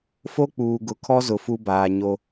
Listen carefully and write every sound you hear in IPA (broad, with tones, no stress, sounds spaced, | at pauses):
f o˦ k͡p uː˨ ɡ ʊ˨ kʰ ɔ˦ z ʊ˨ f u˦ b aː˨ ɲ o˦